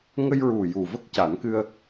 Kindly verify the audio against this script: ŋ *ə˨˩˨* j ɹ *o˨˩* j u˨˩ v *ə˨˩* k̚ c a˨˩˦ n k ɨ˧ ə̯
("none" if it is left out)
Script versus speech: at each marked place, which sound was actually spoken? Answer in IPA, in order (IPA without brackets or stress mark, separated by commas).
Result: ə˧, u˨˩, ə˦˥